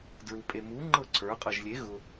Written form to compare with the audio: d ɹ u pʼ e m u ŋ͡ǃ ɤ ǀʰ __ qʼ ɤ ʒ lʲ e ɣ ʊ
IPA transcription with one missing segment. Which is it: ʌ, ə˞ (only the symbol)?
ə˞